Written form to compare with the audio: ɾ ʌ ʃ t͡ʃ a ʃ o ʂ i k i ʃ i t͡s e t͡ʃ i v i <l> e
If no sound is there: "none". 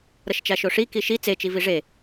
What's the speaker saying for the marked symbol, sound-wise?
ʐ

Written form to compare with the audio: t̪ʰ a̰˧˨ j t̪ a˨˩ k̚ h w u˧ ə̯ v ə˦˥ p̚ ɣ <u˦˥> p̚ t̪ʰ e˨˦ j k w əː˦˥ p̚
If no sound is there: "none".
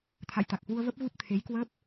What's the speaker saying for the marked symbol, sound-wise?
u˦˥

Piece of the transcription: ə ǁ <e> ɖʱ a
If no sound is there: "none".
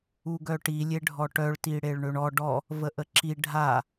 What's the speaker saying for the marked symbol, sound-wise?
i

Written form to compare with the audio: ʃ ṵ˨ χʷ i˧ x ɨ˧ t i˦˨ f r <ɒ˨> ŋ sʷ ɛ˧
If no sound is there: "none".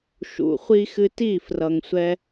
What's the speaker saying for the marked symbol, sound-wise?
ʌ˨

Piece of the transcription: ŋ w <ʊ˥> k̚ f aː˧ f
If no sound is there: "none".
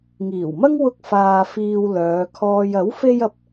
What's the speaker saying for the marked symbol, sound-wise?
ʊ˥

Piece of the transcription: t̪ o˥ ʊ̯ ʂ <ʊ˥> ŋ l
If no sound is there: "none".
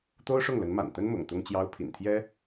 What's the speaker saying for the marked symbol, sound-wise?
ʊ˥˩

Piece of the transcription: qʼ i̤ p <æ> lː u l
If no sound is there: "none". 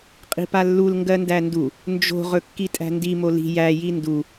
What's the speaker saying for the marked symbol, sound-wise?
a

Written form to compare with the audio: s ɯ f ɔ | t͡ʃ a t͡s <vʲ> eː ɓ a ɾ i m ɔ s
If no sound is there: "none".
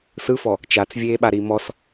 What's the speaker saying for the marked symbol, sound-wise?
vʲ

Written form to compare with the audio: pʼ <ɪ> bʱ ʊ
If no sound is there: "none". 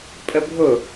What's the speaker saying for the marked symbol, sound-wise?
ə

